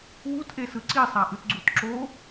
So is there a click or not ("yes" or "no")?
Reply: yes